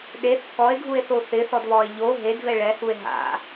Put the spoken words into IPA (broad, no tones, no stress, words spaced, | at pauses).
ɗeθ kɔe̯ɡʱue̯θo θɪθɔdβɔe̯ ʎo ɦedvɛ ɭɛhue̯ ɦa̰